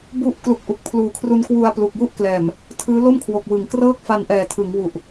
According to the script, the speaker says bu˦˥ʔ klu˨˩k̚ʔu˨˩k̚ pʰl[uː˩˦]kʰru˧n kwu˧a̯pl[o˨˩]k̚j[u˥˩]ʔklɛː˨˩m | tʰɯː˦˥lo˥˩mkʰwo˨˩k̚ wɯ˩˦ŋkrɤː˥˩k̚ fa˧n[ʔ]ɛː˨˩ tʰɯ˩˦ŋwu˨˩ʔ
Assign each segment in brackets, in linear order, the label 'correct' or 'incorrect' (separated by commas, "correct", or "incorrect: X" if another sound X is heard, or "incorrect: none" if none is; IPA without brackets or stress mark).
incorrect: uː˨˩, incorrect: u˨˩, correct, correct